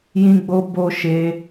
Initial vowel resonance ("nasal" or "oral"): nasal